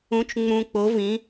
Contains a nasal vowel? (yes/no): yes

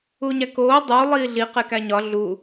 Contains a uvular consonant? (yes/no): yes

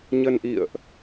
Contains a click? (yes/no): no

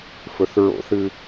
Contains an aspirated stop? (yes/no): no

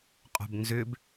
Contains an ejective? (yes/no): yes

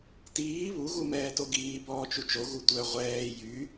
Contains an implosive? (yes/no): no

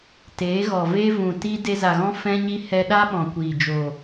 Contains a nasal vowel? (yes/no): yes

